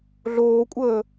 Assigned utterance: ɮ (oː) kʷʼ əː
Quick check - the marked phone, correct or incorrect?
correct